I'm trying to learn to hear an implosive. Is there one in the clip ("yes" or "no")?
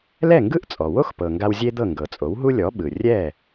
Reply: yes